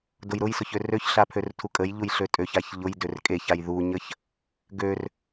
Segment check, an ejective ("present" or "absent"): present